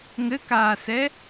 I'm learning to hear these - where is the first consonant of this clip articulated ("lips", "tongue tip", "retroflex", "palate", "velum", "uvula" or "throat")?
velum